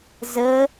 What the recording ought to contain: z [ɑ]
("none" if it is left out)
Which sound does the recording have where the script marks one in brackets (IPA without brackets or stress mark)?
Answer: ə